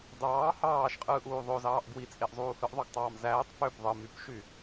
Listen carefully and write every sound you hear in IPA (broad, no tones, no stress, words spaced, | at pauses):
dɑː hɑːʃqʼɯːʔuː ðˤozɑːʔ ɡwit͡sʼeʔzˤuː hɯʔðˤoɡtˤɑːm zæːtˤ pøp ðˤɯ mypʃy